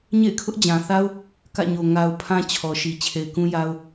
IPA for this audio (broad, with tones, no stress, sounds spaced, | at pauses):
ɲ ḛ˦˨ ɪ̯ kʰ ʊ˦ ʔ d͡ʑ ã˨ θ a˦ ʊ̯ | k ä̰˦˨ ɲ o˨ ŋ a˨ ʊ̯ pʰ ã˦ t͡ɕʰ ɔ˨ ʃ i˨ t͡ɕʰ e˨ ɪ̯ k ũ˦ j a˦ ʊ̯